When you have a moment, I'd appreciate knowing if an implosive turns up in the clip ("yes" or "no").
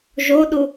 yes